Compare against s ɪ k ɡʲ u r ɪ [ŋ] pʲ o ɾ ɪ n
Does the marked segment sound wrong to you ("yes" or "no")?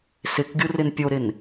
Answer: yes